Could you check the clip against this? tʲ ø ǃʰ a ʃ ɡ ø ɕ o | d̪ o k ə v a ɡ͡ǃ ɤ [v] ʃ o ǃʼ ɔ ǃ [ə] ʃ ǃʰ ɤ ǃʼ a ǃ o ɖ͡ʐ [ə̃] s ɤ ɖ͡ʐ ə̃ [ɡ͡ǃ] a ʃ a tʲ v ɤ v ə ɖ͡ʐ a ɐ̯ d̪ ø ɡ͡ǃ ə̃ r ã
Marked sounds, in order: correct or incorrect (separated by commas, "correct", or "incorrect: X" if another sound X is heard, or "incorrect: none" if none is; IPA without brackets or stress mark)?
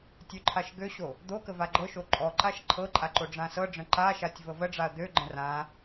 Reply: incorrect: none, incorrect: a, incorrect: ã, incorrect: ǃ